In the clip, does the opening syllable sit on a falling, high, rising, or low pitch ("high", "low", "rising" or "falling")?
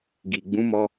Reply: low